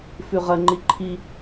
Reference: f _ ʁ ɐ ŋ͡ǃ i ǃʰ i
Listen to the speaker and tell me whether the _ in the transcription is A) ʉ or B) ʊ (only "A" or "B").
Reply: A